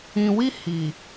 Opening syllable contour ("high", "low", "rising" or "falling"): low